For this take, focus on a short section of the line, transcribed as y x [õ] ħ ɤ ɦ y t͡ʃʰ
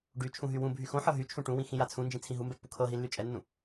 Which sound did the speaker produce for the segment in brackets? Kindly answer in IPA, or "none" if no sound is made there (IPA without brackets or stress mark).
õ